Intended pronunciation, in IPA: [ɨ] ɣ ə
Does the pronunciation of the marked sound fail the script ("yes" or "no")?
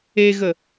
yes